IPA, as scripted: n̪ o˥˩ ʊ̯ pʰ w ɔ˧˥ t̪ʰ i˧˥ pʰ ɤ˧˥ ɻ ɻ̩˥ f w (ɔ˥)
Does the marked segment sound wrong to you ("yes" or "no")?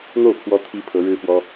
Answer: no